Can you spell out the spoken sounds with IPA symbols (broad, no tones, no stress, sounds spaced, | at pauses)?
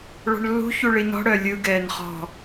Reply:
ɭ ɔ̤ ɳ lː ṳ ç u ɭ i n ɔ̤ ɽ œ lʲ ɯ ɡ ɛː n χ ɔ̤